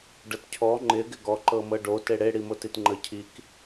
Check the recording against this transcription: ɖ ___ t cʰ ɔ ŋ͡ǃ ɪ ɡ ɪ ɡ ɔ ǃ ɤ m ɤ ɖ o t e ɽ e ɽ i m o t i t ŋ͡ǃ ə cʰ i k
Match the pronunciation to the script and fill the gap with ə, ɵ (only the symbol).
ə